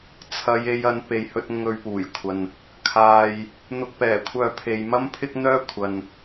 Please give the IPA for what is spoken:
t͡sʰ ɐ˨˧ j e˨˧ j ɐ˨˧ n p e˨ j h ɵ˧ t̚ ŋ ɵ˧ ɥ p uː˨˩ j kʷʰ ɐ˨ n | kʰ aː˨ j | n̪ ʊ˧ k̚ p ɛː˨˩ kʷʰ œː˧ pʰ e˨ j m ɐ˥ m pʰ ɪ˥ k̚ n̪ œː˥ kʷʰ ɐ˨ n

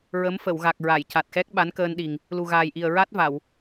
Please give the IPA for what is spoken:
ɹ ə˧˥ m f ə˨˩˨ w ɣ a˨˩ k̚ ɹ a˨˩˨ j c a˨˩ t̚ x ɛ˦˥ k̚ ɓ a˧˥ n k əː˧ n ɗ i˨˩ ŋ | l u˨˩ ɣ aː˨˩ j ʔ i˨˩ ə̯ ɹ a˦˥ t̚ v a˨˩˨ w

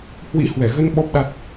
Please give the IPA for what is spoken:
h w ḭ˧˥ h w ɛ˧˩ ɣ ə˧ n ɓ ɔ˦˥ p̚ ɗ a˦˥ t̚

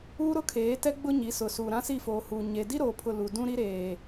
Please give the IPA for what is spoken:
uː˦ ɾ ʊ˦ kʰ eː˨˦ t ɛ˦ ɡ͡b ʊ˦ ɲ i˨˦ s ʊ˨ s uː˨ ɾ ã˦ s i˦˨ f oː˨ h uː˨ ɲ e˨ d i˦ ɾ oː˨ pʰ ʊ˨ l u˨ d ũ˦ ɾ i˦ ɾ eː˨

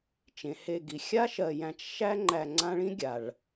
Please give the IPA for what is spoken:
t͡ʃ ẽ˩ h e˨ ɡ i˩ xʲ a˥ ʃ ɜ˨ j æ̃˨ t͡ʃ ʃ æ˦ ŋ͡ǃ æ˨ ŋ͡ǀ ã˦ ɭ ĩ˥ ɡʲ a˩ ɭ

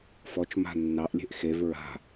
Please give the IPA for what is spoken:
f ɔ t͡ʃ m a̤ nː ɑ ʔ lʲ e̤ ʔ x e v ɹ a̤

